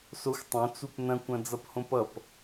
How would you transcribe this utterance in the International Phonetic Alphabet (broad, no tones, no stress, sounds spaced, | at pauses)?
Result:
s o xʷ tˤ õ t͡s u p n ɐ̃ kʷ ɐ̃ d͡z ʌ p h õ p ʌ p